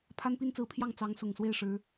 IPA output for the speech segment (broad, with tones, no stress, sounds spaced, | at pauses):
pʰ a˥ n p i˥ n t͡s ɹ̩˧˥ pʰ j ɑ˥˩ ŋ t͡s ɑ˧˥ ŋ s ʊ˨˩ ŋ s w e˥˩ ɪ̯ ʂ ɻ̩˧˥